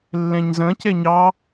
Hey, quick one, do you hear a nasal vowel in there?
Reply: yes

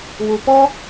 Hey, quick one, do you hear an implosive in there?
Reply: no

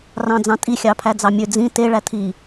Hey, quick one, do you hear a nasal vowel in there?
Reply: yes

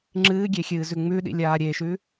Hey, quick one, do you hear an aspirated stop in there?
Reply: no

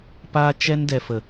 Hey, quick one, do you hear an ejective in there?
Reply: no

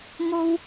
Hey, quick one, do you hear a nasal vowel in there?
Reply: no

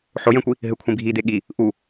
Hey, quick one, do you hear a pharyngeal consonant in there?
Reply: yes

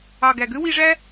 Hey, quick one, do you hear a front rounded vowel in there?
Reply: yes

